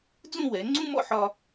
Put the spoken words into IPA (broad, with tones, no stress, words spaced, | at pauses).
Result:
d͡zũ˥˧wɛ˩˧ ŋ͡ǀũ˥mɔ̰˥˧ħɒ˧